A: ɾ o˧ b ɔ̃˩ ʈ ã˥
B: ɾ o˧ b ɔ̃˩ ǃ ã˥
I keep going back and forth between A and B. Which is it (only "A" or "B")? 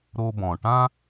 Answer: A